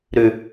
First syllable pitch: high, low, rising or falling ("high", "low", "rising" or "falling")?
low